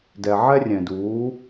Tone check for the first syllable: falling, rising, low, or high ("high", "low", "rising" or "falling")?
low